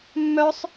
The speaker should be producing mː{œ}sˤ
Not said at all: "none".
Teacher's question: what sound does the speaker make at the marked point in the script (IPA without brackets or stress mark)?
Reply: œ